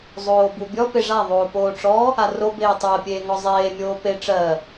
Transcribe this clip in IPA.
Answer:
zˤoːbubʲɔ peʐa ðˤoːpoːʈ͡ʂɔ | aro beːtˤɜ pʲeːŋɔzˤeː mʲoːpe ʈ͡ʂɜ

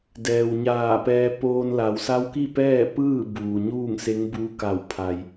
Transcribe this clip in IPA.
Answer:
dɛː˩wɲaː˧˩pɛː˧ poː˧nla˩˧w sa˧˥wki˥˨ pɛː˥˨ pɯː˥˨buː˩ ɲuː˥˨ŋse˧˥ŋbuː˧˥ka˧˩w pʰa˩j

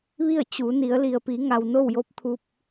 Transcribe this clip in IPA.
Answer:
ʋi˥˨ə̯t͡ɕu˩˧ni˩˧ə̯ li˩ə̯pi˩˧ŋa˩w no˥˨wjo˧˥p̚ t̪ʰu˧p̚

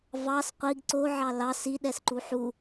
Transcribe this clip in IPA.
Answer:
vɑs qʷiɡ ǀoʕɑ lɑs iɗɛsǃu ħu

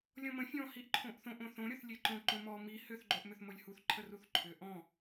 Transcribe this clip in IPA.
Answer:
lʲɔ̃mə̃ fʲɔ̃ hiʔǃʰõʔθõʔ õθõ ɾʲoθlʲeǃõ ǃõmɔ mi hʏθ ɡ͡ǃoʔmʏθmolʲhuθ ǃʰəruθǃʰʏ ʔɔ̃

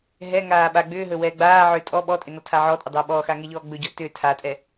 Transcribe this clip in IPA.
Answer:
ɦɛŋaː ɓa ɡ͡bʏːɦɵ wɛːɡ͡baːʕʏː tʼɔ ɓɔtʼʏ nɔtʰaʕɔtʼʏ dˤʏːɓɔːxa ŋɛʎɔːɡ͡bɵɟɔ tʏ tʰatʼɛ

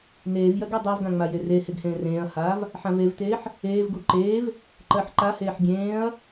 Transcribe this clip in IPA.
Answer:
neːvjɜɡ edˤɜvɡã ŋ͡majereheɡ hẽːrẽːɐ̯haːv | ħãvevteːħ | eːvɡu ǃeːv | ǃɜħǃaheːħ ɡʲẽːɐ̯

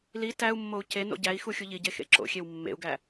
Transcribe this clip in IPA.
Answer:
li tæu̯mːou̯ ce no̰ɟæi̯xu xʲuʎiɟe xḛǁo̰xʲew mːḛu̯ɡæ

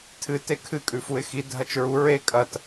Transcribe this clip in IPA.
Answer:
tʰɨ tekʰɨ kʼʉfuɪ̯xi dʱɐt͡ʃɹu ɹe kʼɐt

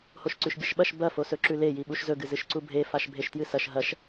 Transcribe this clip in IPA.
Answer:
hoʃǀʉʃbʲɐʃɓɐʃ bɐ fosɵǁʉle jiɓuʃzɵ ɡɨzɨʃǀubʱe faʃbʱeʃtjɨsɐʃ ɦɐʃ

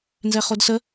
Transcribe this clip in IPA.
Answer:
nzɛχodsə

